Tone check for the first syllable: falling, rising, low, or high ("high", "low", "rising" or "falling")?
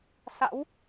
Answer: rising